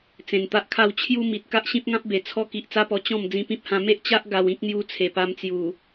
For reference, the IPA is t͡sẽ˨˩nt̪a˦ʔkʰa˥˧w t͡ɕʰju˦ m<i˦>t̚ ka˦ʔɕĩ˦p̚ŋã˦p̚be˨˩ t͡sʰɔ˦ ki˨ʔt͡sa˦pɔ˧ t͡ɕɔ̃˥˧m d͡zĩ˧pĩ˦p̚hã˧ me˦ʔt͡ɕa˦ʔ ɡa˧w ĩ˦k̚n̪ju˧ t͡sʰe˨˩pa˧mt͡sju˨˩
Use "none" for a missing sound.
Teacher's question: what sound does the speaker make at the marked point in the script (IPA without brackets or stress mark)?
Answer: i˨